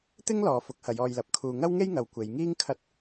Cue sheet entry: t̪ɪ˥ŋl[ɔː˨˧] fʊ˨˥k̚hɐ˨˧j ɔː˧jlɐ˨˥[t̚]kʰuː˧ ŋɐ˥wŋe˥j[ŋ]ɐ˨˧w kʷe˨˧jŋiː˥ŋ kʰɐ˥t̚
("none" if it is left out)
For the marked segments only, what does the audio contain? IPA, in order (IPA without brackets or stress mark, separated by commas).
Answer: ɔː˨˧, p̚, ŋ